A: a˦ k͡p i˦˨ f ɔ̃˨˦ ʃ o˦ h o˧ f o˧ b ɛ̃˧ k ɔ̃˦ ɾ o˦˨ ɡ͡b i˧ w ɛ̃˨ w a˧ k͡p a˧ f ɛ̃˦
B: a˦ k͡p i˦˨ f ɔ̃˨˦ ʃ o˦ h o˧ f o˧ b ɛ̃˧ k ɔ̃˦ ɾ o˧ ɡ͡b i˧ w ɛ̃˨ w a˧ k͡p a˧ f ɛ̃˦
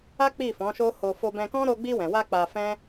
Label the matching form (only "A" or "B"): B